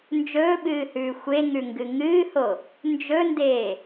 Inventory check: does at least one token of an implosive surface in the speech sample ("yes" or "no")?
yes